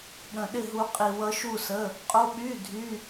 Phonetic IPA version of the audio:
ɠ ə̃˧ ɗ ɪ˥˧ ɦ u˦˥ qʼ i˧ w ʌ˦˥ ʃ u˥˧ s ə˧˥˧ | qʼ o˦˥ ɓ y˧˥˧ dʱ y˧˥˧

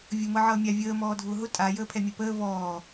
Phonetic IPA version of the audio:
vʲ ʊ m ɤ ʕ ʌː mʲ a vʲ əː m ɔː dʱ ʊː ɦ ʊ tʼ a j əː pʰ ɛ mʲ ɤ p əː v ɔː

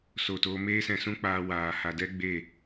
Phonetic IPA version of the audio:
s o˦˨ t oː˦ m eː˦ s ɛ̃˧ s ũ˦ k͡p aː˧ w aː˨ h a˨ d ɛ˦ ɡ͡b e˦˨

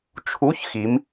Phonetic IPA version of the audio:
t͡ʃʰ u˧˥˧ ç x i˨˦ m

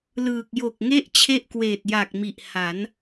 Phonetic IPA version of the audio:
l ɯː˨˩ k̚ j o˨˩ k̚ ŋ e˥˩ ʔ t͡ɕʰ e˥˩ ʔ k w eː˨˩ t̚ j a˨˩ k̚ m i˨˩ ʔ h a˩˦ n

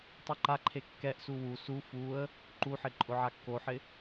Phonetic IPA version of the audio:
tˤ u ǃ a ǃʰ e kː ɛ ʔ s u w u s u f u ə̯ | ǃ u ħ ɪ ǃʼ ʊ ʕ a kː o ħ ɪ

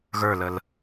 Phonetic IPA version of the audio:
ɣ ə˞ l ə l

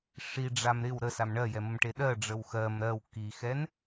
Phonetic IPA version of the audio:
ʂ i ɖ͡ʐ a m ɾ ɪ w ɾ ə s a m ɳ ɜ j ɛ m ə m ʈ e ɗ ɜ ɖ͡ʐ ə w x ɜ m ɾ ɜ w k i x ɛ n

